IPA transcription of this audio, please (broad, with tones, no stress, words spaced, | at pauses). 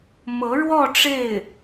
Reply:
mɤ˧˥ɻwɔ˥˧ ʈ͡ʂe˥˩ɪ̯